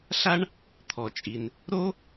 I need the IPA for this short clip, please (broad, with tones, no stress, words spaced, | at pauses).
ɬa˥ɳ | t̪ʰɔ˩t͡ʃʼi˩n | ɾo˥